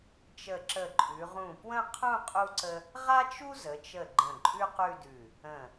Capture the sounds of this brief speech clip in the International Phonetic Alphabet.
t͡ʃ ə˧˩ ǁ ə˧˩ ǃʼ ʉ˩˧ ʁ ũ˧˩ p w ə̃˥˧ qʰ ũ˥˧ qʼ u˥ ǀ ə˥ | ʁ a˥ t͡ʃ u˥ z ə˩˧ t͡ʃ ə˧˩ ɡ͡ǃ ə̃˧˩ ǃʼ ʉ˥ q ʉ˥˧ d ʉ˧˩ | ə̃˧˩

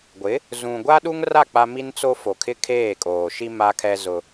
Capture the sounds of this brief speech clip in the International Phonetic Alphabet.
ɡʷ ɪ˨˦ | z ũ˨ ɡʷ a˦ ɗ u˦ ŋ r a˦˨ k͡p a˦ m i˦ n t͡s o˦ f o˨ kʰ ɪ˦ kʰ eː˦˨ kʼ oː˨ ʃ i˦ m a˦ kʰ ɛ˦ z ʊ˦

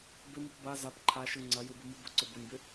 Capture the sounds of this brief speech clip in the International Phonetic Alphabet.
b ɪ m i p b a z a p ǃʰ a ʃ ɯ ŋ͡ǀ ɐ j ɯ b ɯ m ɯ b ʊ ǀ ʊ b ʊ nʲ b ɪ

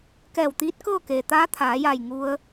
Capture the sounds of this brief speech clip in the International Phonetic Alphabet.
k ɛː˧˩ w t̪ iː˧˥ t̚ k ɤː˥˨ k eː˩ t̪ aː˧˥ t̪ʰ aː˩˧ j a˧˩ j ŋ u˧ ə̯

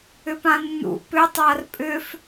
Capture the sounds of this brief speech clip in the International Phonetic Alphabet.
ʏ p ã nː ṵ p ʏ tˤ a r pʼ ʏ f

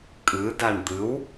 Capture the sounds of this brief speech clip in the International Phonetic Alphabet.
kʼ ɯ d a ɳ d̪ ɯ w

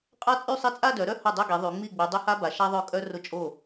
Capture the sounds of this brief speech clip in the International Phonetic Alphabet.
qʼ a˥˧ t͡sʼ y˥˧ sˤ i˥˩ t͡sʼ a˥˧ d œ˩˧ ɾ œ˥˧ h ʊ˥˩ dˤ œ˥˧ ɡ i˩˧ ðˤ y˩˧ ŋ͡m i˥˩ ɡ͡b y˩˧ dˤ ʊ˥ h a˥ b a˩˧ ʃ a˥ ðˤ œ˥˩ kʼ œ˥ r ʊ˥˩ t͡ʃʼ o˥˩

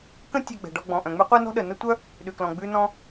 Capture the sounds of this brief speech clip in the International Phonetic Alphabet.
k ə̃˥ tʲ e˧ ɡ͡b ɛ̤˩ ɖ ɔ˧ ɡ͡b ɔ̃˩ ʔ œ̃˩ ŋ͡m ʉ˥ qʷ ɛ˥ n ɔ̤˥ ɗ ə˩ n ə˥ tʷ œ˥ | ɗ ʉ˩ k l ɔ̃˩ ɡ͡b ʉ˧ n ɔ̃˧

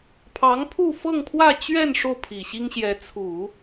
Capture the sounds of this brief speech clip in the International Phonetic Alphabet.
pʰ ɑ˧˥ ŋ pʰ u˥˧ f ɤ˥˧ ŋ pʰ w ä˥˧ t͡ɕ ɥ ɛ˥˧ n ʂ o˥˩ ʊ̯ pʰ i˨˩ ɕ i˥ ŋ ɕ j ɛ˧˥ t͡sʰ u˨˩˦

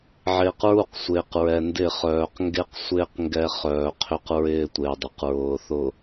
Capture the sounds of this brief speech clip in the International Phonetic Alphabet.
ʕ ɪː˨ q ɹ u˦˨ q sʷ ɪː˨ q ɹ ɛ˨ n d ɪ˦˨ χ œː˨ q ŋ ɡ e˦ q sʷ ɪː˦ q ŋ ɡ ɛ˦ χ œː˨ qʰ ʏ˦ q ɹ ɪː˦ tʷ ɪː˨ dˤ ʏ˨ q ɹ ʊː˨ θ ʊ˨

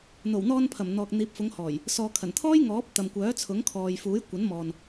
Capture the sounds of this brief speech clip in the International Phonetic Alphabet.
n̪ o˨˩ w n̪ ɔː˧ n pʰ ɐ˨˩ m n̪ ɔː˨ k̚ n̪ iː˨ p̚ f ʊ˨˧ ŋ h ɔː˨˩ j | s ɔː˨ kʰ ɐ˨˩ n t̪ʰ ɔː˥ j ŋ ɔː˨˥ p̚ t̪ ɐ˨ m kʷ œː˨˥ t͡sʰ ʊ˨˥ ŋ kʰ ɔː˨ j f uː˨˥ j kʷ ɐ˨˥ n m ɔː˨ n

